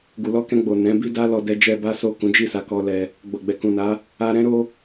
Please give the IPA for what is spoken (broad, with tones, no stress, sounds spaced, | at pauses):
ɡ u˧ l ɔ˦ k ɛ̃˧ ɡ͡b o˨ n ɛ̃˨˦ b i˦ d a˦ l ɔ˧ d ɛ˧ d͡ʒ ɛ˧ b a˦ s o˦˨ k ũ˨˦ d͡ʒ i˦˨ s a˧ k ɔ˧ l ɛ˧ | ɡ͡b o˨ ɡ͡b ɛ˨ k ũ˨ n a˨˦ | a˧ ɾ ɛ̃˦ ɾ o˦